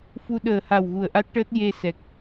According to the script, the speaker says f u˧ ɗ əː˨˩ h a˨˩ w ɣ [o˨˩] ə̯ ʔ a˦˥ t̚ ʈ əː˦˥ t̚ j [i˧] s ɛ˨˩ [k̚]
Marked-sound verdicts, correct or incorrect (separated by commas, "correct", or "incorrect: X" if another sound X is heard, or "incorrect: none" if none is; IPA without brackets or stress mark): incorrect: u˨˩, incorrect: e˧, correct